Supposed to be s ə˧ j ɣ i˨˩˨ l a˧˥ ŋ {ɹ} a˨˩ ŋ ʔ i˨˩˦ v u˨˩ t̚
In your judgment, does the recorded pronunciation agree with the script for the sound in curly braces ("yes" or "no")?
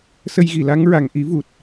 yes